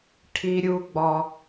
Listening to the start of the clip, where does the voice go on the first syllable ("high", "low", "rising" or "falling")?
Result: high